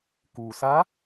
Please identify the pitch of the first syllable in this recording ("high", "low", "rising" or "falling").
low